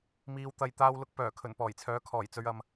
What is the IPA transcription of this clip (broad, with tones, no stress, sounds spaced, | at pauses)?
m iː˨˧ w t̪ ɐ˧ j t̪ aː˥ w l ʊ˥ k̚ p œː˨˩ kʰ ɵ˨˩ n p ɔː˨˩ j t͡sʰ œː˨˥ kʰ ɔː˨˩ j t͡s ɵ˨˧ ɥ ɐ˨ m